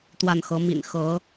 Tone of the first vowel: falling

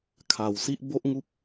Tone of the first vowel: low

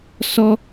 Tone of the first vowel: high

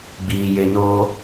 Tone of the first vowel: low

